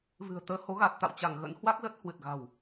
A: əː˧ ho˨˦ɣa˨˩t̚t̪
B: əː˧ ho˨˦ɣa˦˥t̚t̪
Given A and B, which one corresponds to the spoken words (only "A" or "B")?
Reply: A